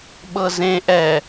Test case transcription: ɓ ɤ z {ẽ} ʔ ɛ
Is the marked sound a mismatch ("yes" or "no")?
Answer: no